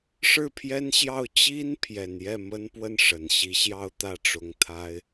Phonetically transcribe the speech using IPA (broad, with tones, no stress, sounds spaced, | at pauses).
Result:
ʂ ɻ̩˥˩ pʰ j ɛ˥ n ɕ j ɑ˥˩ ʊ̯ t͡ɕ i˥ n pʰ j ɛ˨˩ n j ɛ˥˩ m ə˥ n p w ə˥˩ n ʂ ə˨˩ n ɕ i˧˥ ɕ j ɑ˥˧ ʊ̯ t̪ ä˥˩ ʈ͡ʂ ʊ˧˥ ŋ t̪ʰ a˥ ɪ̯